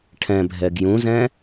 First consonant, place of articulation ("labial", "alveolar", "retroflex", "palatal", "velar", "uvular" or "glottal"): retroflex